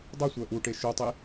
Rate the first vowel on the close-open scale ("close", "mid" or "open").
close